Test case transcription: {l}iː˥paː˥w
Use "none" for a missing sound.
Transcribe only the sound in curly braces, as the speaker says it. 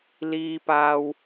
l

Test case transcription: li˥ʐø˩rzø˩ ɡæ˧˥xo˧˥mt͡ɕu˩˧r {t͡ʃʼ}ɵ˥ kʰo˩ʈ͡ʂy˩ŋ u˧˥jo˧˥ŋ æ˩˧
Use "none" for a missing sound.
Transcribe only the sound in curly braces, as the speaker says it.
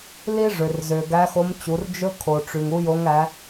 d͡ʒ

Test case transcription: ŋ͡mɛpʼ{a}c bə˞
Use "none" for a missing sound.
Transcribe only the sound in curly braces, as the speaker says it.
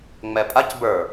a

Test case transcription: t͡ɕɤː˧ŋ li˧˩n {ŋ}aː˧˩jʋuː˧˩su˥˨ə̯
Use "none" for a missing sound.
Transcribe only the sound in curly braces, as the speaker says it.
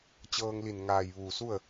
ŋ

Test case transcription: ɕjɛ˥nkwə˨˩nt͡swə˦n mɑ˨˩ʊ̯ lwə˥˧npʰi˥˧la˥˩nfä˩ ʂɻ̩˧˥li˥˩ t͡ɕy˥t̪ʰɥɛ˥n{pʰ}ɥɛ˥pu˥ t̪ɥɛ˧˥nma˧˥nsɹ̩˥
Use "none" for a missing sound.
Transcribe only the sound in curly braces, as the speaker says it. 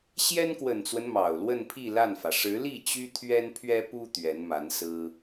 pʰ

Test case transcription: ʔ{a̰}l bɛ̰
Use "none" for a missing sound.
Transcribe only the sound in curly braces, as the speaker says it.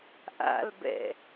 a̰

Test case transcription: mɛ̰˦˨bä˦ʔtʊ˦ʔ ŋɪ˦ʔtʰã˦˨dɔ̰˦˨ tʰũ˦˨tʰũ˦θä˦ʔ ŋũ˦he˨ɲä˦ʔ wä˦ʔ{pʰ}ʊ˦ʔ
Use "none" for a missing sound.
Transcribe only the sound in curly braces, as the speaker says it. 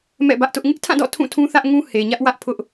pʰ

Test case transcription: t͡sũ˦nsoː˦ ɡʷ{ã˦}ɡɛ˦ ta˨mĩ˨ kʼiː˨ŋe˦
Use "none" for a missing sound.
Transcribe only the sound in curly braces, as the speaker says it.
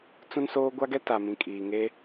a˦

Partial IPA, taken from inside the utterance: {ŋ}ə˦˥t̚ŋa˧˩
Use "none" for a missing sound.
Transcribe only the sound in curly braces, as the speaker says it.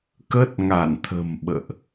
k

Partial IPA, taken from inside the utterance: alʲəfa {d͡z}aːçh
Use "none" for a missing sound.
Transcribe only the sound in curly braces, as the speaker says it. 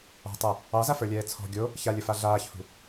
ɮ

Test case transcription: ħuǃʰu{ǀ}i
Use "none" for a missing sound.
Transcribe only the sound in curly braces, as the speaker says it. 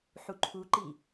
ǃ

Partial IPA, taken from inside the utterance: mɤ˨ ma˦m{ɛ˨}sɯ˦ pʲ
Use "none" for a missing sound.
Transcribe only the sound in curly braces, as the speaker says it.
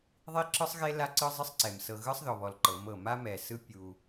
ɛ˨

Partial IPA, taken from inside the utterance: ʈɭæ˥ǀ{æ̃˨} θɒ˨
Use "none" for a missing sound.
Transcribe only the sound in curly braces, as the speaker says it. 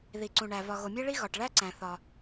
æ̃˨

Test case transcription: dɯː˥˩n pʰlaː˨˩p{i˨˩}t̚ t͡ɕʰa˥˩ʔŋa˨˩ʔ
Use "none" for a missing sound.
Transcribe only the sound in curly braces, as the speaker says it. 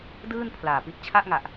i˦˥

